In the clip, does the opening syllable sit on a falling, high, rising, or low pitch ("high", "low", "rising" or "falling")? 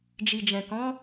low